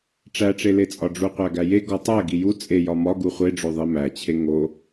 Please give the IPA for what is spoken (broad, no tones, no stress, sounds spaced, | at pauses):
ʈ͡ʂ æ ʈ͡ʂ e l e t͡sʼ ɒ ɖ͡ʐ u qʷ æ ɡ æ j e ɡ ɒ tˤ æ ɡ i j u t͡sʼ e j ɒ m ɒ ɡ u χʷ e ɖ͡ʐ o ðˤ i m æ t͡ɕʰ e ŋ o